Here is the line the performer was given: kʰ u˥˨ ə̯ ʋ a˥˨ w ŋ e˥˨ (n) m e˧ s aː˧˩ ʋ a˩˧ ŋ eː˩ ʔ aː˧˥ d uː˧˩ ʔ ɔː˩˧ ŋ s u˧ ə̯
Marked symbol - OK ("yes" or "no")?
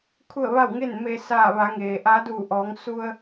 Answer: yes